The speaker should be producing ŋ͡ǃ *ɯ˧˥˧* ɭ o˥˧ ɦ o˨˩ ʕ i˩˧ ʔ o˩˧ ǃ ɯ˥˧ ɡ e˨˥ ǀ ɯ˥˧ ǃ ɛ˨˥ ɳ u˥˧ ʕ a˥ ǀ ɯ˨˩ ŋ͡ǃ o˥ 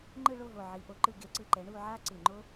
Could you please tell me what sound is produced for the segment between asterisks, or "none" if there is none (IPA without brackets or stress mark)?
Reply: ɯ˥˧